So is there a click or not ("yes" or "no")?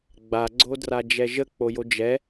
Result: yes